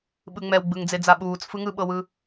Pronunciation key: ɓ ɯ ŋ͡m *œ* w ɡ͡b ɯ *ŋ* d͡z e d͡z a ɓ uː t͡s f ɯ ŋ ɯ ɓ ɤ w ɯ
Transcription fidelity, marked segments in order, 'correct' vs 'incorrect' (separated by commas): incorrect, correct